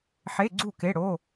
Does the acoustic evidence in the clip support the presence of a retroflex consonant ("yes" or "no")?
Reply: yes